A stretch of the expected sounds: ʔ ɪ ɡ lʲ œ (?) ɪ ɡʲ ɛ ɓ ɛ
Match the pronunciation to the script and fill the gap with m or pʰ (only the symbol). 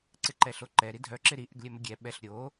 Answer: m